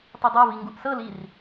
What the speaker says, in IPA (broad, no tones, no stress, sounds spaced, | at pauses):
tˤ i dˤ ɤ v i ŋ ɡ u ʔ s ɤ l i r